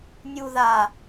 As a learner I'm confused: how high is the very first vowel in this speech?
high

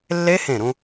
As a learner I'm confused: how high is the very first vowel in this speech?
mid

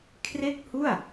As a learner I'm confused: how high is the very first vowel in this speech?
mid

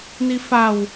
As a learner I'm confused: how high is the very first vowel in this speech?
high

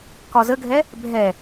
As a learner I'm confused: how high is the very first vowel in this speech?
low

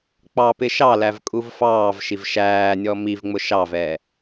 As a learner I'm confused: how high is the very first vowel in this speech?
low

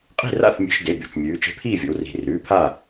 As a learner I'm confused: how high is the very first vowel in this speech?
high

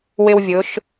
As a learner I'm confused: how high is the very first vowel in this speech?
high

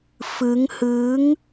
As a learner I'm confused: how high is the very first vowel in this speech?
high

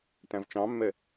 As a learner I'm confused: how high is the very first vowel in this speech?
low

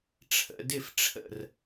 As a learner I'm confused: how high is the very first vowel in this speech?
mid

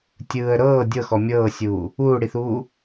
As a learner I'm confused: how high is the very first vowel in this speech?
high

